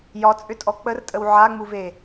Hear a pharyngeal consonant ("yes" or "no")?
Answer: yes